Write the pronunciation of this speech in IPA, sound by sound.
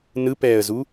n ɯ p ɛː ə̯ z u

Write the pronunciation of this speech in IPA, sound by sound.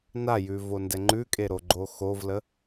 n a j ʉ v o n d ɛ ŋ͡ǃ ʉ kʼ e ɾ o ɡ͡ǃ o x o v l ə

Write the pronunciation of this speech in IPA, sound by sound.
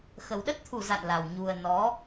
x ə˨˩ w ɗ ə˦˥ t̚ t̪ʰ u˧˩ z a̰˧˨ n l a˨˩ w ɲ u˨˩ ə̯ n ɔ˨˦

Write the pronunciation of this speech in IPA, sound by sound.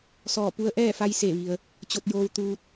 s ɔː˧˩ p u˧ ə̯ ʔ ɛː˥˨ f a˧ j s e˧˩ ʋ i˩ ə̯ | t͡ɕ o˧ t̚ j oː˧ w t̪ uː˧ t̚

